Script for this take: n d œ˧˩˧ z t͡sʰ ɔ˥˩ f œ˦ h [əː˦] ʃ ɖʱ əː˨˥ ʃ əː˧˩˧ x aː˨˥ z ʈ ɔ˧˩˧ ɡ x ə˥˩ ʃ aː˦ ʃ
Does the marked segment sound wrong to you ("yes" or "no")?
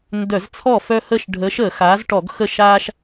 no